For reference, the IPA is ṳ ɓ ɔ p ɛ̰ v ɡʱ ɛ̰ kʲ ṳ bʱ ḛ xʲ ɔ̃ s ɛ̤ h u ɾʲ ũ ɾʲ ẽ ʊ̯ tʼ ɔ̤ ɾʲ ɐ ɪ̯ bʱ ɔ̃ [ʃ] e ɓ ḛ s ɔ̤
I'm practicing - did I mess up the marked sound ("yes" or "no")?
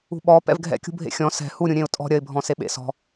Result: yes